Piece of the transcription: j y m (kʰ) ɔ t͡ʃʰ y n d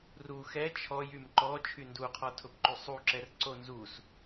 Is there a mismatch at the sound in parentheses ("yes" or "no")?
yes